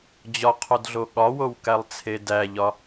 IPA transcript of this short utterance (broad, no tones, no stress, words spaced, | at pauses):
d͡ʑɒqʰodɮo ɠɒwowkælˠt͡sʰe dæʎɒ